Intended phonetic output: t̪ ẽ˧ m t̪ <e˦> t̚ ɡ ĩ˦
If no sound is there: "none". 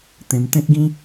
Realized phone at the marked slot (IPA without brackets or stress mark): ẽ˦